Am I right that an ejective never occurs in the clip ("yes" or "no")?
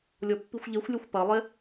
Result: yes